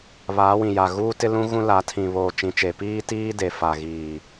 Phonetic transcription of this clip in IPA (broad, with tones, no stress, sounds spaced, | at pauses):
β aː˨˦ w ĩ˨ j a˨ ɣ uː˦ t ɪ˦ l ũ˦ ɣ ũ˦ l a˨˦ tʰ ĩ˨ β oː˨ t͡ʃ ĩ˨ t͡ʃ e˨ p iː˦ t iː˦ d e˨ f a˨ ɣ iː˨